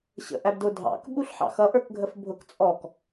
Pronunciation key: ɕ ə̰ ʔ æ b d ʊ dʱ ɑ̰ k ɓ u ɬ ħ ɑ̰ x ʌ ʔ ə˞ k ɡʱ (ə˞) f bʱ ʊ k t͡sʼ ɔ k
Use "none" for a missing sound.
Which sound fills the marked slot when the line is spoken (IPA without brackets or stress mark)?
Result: ə